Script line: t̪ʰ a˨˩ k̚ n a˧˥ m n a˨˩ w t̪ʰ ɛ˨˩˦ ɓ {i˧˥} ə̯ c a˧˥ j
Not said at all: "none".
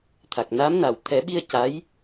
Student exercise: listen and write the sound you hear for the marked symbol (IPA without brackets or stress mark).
i˧